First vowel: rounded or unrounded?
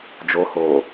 rounded